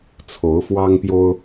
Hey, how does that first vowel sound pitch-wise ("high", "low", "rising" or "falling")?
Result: rising